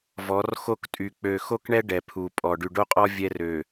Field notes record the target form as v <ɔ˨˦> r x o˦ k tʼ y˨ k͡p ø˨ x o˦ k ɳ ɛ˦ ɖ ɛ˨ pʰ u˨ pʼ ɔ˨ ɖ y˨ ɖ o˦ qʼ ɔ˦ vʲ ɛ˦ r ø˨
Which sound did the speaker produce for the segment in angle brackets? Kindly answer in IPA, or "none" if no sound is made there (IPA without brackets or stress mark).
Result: ɔ˨˦